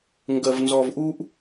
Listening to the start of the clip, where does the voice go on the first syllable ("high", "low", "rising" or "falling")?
low